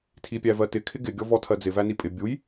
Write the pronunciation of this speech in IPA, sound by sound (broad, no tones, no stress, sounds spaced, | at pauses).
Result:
tʰ i pʲ æ v ɜ t ɪ kʰ ɪ ɡ ɪ ɡʲ ɔ v ɔ tʰ ɜ d͡z ɪ v æ n i pʼ ɪ bʲ u j